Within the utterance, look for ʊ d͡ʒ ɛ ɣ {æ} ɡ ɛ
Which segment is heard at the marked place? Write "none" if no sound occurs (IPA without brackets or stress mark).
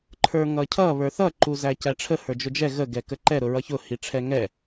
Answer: ə